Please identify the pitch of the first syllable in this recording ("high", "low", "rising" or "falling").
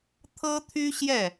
high